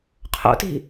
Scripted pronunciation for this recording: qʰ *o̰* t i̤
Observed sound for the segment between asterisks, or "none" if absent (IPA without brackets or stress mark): o̰